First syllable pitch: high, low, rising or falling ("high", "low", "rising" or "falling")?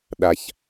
low